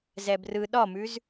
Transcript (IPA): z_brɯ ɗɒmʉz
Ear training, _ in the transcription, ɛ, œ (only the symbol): ɛ